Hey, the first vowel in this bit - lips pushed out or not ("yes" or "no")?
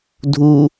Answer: yes